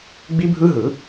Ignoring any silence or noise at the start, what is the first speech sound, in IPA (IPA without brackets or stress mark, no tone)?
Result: ɡ͡b